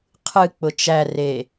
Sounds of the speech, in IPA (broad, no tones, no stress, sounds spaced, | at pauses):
qʰ ɨ k͡p ʊ t͡ʃ æ r e